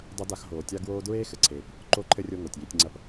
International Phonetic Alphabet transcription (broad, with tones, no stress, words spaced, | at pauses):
dˤɐ˥da˦x ɦoː˨ tʲa˥ɡwoː˥ dɹeː˥xɘ˨ǀʰeː˨p | ǃo˥ǃʰɘ˥rʲo˦ ŋo˩tʲji˦tʲŋ͡ǀɐ˥p